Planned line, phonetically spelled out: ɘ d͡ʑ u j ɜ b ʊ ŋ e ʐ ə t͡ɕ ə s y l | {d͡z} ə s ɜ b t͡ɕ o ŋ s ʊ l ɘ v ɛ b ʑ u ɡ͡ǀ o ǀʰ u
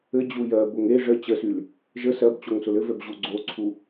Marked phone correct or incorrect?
incorrect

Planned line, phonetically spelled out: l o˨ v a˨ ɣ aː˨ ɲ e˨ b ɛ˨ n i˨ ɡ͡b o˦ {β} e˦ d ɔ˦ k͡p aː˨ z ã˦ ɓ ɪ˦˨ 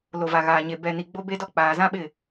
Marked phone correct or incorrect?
incorrect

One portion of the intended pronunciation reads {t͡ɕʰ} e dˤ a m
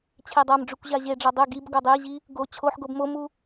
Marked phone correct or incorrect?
correct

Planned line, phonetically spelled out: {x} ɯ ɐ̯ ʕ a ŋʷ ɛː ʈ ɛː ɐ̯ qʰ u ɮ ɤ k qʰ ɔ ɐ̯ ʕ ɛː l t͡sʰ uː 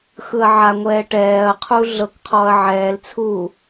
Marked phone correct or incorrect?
correct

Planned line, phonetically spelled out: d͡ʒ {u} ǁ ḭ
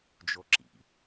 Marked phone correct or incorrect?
incorrect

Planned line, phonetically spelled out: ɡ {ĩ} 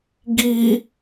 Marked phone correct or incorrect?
incorrect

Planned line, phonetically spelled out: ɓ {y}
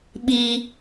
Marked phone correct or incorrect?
incorrect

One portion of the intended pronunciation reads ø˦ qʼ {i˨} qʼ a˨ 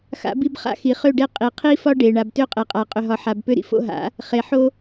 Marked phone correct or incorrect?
incorrect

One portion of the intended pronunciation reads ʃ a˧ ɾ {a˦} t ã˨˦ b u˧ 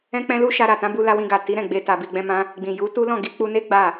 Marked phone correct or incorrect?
incorrect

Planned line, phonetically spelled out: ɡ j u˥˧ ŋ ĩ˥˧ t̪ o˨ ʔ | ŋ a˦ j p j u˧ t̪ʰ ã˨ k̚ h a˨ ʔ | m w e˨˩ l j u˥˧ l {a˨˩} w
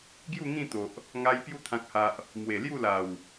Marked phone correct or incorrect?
correct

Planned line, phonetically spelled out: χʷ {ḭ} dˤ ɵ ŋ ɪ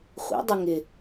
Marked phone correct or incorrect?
correct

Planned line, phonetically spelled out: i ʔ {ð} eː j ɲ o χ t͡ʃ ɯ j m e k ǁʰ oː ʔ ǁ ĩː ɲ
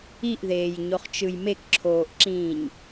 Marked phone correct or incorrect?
correct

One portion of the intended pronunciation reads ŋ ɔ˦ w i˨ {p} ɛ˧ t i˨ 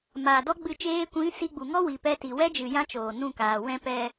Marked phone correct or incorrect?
correct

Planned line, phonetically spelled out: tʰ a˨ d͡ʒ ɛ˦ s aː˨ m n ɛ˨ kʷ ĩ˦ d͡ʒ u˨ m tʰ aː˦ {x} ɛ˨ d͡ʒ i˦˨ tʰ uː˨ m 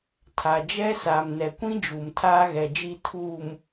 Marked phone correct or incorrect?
incorrect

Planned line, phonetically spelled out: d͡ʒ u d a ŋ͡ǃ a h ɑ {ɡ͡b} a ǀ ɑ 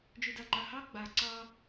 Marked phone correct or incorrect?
correct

